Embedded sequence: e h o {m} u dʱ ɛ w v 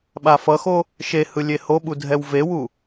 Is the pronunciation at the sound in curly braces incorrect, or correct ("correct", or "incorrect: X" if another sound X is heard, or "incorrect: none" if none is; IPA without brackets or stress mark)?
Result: incorrect: ɓ